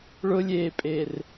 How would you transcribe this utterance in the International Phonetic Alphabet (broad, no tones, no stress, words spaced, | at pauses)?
ɭʊlʲeːpʼer